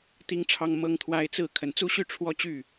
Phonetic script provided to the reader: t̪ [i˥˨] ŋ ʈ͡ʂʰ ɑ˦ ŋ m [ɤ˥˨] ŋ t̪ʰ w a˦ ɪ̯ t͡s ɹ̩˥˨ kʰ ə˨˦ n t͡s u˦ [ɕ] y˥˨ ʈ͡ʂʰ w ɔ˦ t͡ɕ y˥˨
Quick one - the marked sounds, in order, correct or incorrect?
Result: incorrect: i˦, incorrect: ɤ˦, correct

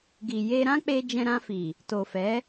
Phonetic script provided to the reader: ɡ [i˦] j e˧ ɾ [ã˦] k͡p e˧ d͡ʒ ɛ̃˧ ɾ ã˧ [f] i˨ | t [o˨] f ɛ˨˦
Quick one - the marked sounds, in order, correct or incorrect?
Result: incorrect: i˨, correct, correct, correct

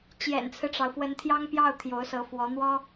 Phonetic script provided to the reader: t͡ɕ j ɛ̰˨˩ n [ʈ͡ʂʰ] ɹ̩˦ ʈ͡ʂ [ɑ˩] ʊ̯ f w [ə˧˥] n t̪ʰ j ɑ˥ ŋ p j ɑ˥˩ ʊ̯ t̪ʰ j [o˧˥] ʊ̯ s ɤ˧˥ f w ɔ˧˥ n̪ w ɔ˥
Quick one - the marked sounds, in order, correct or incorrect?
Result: incorrect: t͡sʰ, correct, correct, correct

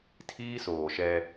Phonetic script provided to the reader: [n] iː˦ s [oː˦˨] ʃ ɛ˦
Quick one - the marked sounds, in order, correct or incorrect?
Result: incorrect: tʰ, incorrect: oː˨

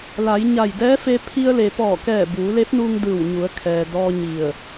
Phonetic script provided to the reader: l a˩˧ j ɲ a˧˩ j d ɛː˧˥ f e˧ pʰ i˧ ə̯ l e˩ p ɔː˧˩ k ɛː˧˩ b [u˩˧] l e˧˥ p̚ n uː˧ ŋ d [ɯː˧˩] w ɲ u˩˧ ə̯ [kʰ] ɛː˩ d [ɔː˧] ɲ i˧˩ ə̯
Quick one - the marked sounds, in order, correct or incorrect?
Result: incorrect: uː˩˧, correct, correct, correct

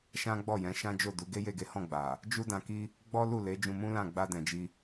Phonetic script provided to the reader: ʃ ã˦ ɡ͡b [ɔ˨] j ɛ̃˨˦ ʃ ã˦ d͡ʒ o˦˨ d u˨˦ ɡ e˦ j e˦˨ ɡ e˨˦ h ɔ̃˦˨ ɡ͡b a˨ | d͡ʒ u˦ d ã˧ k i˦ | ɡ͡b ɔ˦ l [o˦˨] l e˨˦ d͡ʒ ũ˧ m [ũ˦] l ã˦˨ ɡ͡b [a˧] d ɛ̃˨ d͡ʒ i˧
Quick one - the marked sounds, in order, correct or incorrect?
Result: incorrect: ɔ˦˨, incorrect: u˦˨, correct, correct

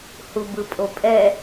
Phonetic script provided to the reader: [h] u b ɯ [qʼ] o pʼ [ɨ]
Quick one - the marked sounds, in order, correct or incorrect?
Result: correct, incorrect: pʼ, incorrect: ɛ

